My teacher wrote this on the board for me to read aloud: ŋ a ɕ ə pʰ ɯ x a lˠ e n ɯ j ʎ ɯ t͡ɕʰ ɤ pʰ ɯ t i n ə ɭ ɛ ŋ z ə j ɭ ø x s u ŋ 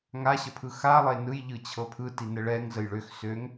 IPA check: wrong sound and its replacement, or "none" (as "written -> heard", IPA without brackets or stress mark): u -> ø